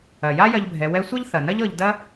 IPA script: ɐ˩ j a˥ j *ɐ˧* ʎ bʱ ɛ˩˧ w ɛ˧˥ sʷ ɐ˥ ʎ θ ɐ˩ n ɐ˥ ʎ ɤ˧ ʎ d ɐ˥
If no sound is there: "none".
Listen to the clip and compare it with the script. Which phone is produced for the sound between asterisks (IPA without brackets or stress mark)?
ɐ˧